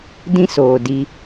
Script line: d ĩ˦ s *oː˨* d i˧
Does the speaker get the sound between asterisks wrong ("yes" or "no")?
no